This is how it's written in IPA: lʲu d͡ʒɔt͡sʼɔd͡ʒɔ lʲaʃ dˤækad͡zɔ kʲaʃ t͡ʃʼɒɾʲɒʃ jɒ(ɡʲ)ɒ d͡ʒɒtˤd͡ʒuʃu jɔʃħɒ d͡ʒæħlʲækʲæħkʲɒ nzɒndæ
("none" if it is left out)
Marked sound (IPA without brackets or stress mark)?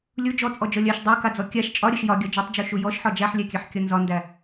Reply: ɡʲ